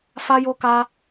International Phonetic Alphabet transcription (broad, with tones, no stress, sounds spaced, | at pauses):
f a˦ j o˦ k a˦